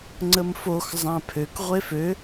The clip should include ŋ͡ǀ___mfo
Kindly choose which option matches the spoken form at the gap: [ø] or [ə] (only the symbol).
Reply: ə